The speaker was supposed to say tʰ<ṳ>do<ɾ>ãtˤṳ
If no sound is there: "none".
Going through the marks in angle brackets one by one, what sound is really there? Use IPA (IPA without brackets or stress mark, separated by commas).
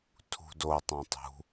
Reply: ṳ, tˤ